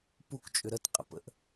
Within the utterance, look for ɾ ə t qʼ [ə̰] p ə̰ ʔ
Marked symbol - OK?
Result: yes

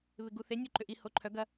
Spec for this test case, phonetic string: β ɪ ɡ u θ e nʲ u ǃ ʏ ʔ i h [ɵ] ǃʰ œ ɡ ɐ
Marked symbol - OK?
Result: no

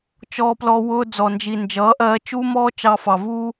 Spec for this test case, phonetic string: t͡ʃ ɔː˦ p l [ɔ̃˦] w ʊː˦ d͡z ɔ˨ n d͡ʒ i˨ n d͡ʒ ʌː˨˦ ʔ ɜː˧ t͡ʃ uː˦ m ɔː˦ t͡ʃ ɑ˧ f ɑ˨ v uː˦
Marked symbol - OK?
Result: no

